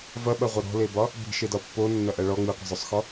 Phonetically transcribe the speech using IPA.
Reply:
v ɐ ɓ ɐ ʁʷ ə ɾ ɔ̤ l e b ɒ | b i̤ ʃ e d ɒ pː o nː ɐ ʔ ɐ ɭ ɔ ŋ͡m i qʷ ə̤ zˤ o sˤ x ɔ

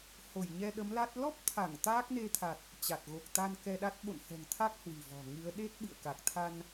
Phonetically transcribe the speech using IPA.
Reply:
h o˧˩ j ɲ ɛ˧ ɗ ə˨˦ m l a˦˥ t̚ l ɔ˦˥ p̚ t̪ʰ a˧˩ ŋ t̪ aː˦˥ k̚ n e˧ t̪ʰ a˨˩ t̚ | t͡ɕ a˨˩ t̚ ɣ o˨˩ k̚ t̪ a˧ n k ɛ˧ ɗ a˦˥ t̚ ɓ o̰˧˨ n h ɛ̤˨˩ ŋ t̪ʰ a˦˥ k̚ h w i̤˨˩ v ɔ̤˨˩ ŋ ɨ˨˦ ə̯ ɗ e˦˥ t̚ ɓ ɨ̰˧˨ ə̯ k a˨˩ k̚ t̪ʰ a˧ n

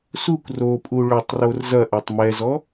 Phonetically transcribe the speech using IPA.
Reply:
s u kʷ r o pʼ u ɭ ʏ tˤ r o r z ɐ ʔ ɛ tˤ m ɛ z ɔ

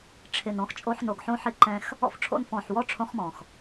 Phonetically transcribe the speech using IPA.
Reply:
ʈ͡ʂʰ ɪ˨ n ɔ̃˧ x t͡ʃʼ o˧ ħ n o˨ ɡ ħ õ˧ ħ ɪ˧ ǃ ɛ̃˧ x | ɔ̰˧ f ʈ͡ʂʰ o̰˧ n f ɔ̃˨ ħ w ɔ˦ ʈ͡ʂʰ õ˦ χ m ɔ̃˨ x

